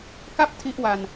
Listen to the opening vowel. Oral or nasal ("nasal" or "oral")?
oral